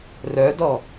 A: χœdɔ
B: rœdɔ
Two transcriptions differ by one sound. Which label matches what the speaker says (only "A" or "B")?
B